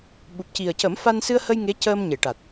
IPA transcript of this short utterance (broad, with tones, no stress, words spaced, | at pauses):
ɓu˨˩p̚ci˨˩ə̯cə˨˩˦mfa˧n sɨ˧ə̯hə˧j ŋe˧˥cəː˧mɲe˨˩˨ʈa˨˩t̚